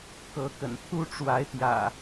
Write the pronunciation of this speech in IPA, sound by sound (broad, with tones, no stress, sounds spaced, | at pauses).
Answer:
k ɤ˨˦ k ə̰˨˩ n t̪ʰ u˦ ʈ͡ʂ w a˨˦ ɪ̯ t̪ j ä̰˨˩